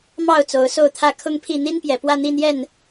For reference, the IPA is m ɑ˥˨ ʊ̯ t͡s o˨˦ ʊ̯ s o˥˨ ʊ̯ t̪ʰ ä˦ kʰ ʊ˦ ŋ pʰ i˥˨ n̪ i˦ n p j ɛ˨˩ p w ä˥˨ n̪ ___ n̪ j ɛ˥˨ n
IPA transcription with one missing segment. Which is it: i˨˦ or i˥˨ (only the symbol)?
i˥˨